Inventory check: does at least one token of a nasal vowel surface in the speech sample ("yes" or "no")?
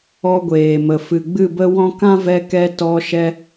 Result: yes